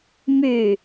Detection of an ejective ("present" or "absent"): absent